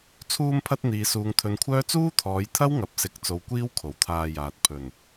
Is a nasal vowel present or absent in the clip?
absent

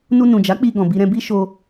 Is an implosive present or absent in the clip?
absent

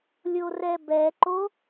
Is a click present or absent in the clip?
present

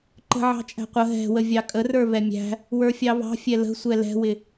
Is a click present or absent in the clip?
present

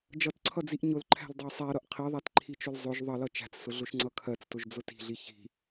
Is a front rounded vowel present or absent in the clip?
absent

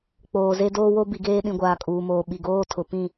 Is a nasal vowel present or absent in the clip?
present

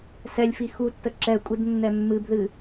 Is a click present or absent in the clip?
present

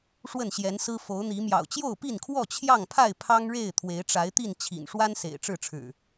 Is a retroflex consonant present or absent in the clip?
present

